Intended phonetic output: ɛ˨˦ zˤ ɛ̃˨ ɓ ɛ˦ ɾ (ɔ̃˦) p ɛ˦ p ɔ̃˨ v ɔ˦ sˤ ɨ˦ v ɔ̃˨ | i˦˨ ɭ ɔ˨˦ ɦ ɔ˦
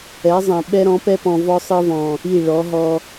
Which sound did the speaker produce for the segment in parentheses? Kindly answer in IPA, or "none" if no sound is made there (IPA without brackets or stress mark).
ɔ̃˨˦